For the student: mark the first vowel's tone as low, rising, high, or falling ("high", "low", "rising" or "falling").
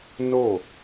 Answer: falling